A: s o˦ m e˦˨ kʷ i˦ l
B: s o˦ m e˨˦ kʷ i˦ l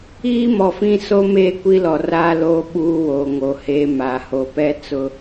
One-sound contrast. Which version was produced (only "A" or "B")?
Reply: A